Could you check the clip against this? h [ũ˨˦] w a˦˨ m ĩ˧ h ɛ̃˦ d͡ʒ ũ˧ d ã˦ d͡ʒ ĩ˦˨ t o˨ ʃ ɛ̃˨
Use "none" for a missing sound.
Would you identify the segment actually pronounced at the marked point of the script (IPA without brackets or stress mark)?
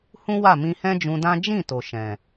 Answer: ũ˦